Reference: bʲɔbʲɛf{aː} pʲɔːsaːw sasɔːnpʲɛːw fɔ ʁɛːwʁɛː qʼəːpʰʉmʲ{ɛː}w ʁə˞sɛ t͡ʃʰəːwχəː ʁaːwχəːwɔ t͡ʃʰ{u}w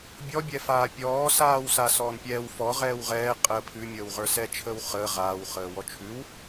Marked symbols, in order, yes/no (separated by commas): yes, no, no